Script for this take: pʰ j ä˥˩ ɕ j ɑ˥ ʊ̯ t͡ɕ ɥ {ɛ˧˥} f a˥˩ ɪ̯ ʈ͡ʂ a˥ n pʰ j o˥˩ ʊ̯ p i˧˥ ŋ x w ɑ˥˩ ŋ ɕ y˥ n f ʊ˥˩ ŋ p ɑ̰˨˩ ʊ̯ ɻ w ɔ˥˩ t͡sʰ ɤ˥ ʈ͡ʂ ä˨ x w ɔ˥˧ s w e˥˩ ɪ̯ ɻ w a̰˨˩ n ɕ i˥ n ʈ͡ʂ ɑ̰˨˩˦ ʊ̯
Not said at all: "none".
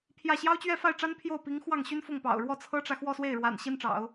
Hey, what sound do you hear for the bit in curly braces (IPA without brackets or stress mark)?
ɛ˥˧